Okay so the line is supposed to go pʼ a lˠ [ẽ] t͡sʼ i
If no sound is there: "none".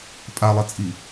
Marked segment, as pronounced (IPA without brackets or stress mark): e